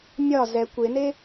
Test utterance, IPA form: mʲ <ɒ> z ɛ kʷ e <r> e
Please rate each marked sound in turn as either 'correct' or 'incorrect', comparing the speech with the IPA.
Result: correct, incorrect: n

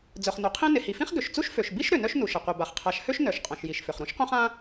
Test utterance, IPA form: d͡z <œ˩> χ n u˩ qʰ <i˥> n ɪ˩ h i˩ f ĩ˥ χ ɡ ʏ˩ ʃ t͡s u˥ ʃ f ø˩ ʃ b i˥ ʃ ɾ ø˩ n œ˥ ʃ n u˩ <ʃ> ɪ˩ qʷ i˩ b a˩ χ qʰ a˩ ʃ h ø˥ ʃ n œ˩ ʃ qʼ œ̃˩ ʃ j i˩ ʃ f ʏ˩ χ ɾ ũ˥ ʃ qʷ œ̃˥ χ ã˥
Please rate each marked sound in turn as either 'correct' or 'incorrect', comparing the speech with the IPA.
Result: correct, incorrect: ĩ˥, correct

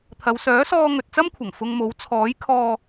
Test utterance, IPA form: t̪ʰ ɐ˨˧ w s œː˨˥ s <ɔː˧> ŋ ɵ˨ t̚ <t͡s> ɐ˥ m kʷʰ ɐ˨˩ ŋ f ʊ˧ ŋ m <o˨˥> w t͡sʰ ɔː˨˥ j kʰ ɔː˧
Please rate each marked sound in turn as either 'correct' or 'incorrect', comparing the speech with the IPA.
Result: correct, correct, correct

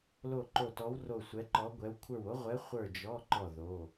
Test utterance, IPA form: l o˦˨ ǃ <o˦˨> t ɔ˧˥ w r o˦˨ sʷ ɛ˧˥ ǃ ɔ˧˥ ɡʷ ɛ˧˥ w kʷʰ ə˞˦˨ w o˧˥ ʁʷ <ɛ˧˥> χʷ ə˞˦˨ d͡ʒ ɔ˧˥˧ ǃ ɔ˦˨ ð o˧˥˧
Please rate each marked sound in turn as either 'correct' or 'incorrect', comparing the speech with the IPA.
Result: correct, correct

